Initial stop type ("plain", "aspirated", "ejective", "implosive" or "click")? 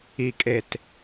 ejective